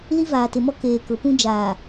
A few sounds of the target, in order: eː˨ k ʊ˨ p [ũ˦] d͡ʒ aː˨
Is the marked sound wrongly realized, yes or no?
no